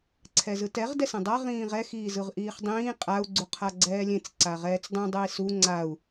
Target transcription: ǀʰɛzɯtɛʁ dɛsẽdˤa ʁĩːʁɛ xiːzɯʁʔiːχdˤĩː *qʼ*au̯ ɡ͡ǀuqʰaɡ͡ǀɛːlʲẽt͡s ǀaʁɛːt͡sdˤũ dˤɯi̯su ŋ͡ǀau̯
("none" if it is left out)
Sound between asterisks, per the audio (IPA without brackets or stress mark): qʼ